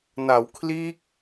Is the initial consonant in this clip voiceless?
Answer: no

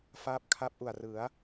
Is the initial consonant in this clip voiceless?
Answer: yes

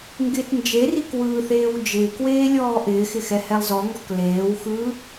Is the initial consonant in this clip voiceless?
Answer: no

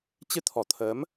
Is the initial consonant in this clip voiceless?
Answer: yes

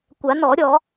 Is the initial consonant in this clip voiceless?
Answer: yes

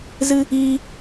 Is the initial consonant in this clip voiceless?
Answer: no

